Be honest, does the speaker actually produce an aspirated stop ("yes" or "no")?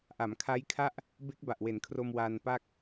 yes